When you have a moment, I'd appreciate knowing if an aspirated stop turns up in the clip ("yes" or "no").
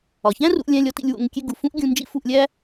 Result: no